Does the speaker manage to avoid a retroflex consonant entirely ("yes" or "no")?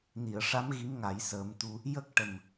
no